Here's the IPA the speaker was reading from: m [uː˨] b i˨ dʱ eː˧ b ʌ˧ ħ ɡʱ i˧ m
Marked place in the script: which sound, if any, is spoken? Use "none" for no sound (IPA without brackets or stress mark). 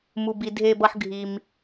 u˨